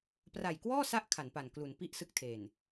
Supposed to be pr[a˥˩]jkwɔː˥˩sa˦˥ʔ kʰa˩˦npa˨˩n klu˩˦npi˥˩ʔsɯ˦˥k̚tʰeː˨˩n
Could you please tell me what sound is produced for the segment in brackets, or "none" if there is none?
a˨˩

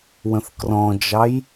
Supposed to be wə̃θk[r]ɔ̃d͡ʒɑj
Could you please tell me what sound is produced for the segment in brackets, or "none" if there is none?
r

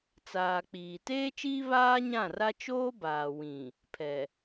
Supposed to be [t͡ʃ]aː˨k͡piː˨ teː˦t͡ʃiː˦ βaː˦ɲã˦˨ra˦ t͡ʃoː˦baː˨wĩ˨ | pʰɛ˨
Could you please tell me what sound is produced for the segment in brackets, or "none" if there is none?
t͡s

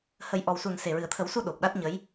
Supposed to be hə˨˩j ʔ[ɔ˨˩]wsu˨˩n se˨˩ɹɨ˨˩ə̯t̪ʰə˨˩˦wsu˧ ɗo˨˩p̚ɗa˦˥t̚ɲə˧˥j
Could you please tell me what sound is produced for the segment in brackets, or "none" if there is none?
ɔ˨˩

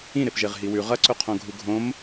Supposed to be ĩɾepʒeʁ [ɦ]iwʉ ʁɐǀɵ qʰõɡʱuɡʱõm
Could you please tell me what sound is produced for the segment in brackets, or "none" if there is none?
ɦ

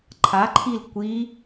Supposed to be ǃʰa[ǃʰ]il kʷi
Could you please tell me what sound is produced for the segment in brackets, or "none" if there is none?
ǃʰ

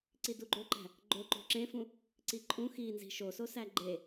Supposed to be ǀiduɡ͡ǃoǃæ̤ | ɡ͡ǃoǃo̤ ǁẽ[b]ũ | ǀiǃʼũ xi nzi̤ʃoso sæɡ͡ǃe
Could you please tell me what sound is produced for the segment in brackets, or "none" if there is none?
f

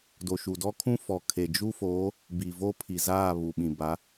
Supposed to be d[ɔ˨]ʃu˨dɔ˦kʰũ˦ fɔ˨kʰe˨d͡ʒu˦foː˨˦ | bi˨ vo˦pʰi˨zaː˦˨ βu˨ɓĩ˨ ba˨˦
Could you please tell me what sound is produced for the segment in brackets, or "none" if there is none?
o˨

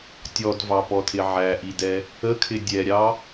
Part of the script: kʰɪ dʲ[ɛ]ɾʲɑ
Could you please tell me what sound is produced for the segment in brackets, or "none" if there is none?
ɛ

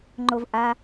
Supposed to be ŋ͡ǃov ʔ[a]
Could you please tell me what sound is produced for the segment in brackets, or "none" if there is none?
a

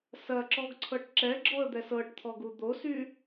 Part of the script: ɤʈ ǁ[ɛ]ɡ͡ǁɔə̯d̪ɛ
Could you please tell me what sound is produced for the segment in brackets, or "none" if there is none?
ɛ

